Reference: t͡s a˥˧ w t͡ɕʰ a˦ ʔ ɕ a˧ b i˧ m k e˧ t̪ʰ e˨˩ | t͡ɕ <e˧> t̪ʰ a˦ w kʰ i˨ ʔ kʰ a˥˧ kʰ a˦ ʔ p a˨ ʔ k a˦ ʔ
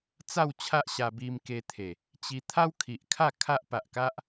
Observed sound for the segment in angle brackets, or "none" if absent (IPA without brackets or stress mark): i˧